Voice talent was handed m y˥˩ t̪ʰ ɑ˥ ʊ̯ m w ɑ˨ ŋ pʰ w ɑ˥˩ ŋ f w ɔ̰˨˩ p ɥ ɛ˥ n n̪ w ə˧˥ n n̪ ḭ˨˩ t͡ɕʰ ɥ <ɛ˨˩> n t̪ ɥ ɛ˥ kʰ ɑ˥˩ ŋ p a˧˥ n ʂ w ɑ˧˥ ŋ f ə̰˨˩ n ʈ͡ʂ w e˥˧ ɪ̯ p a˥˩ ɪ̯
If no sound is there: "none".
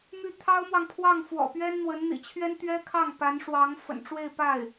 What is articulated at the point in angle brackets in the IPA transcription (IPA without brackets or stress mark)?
ɛ˥